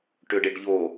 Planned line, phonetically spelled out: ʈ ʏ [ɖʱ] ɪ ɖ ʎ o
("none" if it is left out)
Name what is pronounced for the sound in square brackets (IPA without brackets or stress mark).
ɖ